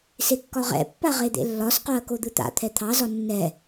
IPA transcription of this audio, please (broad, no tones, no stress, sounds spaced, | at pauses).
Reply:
s e kː ɒ ʁ ɛ̰ pː a ʁ e d̪ ḛ lː ɒ s q o ɐ̯ k o d̪ ɯ t̪ a̰ t̪ʰ ɛ t̪ʰ ɑ z ɒ nː ɛ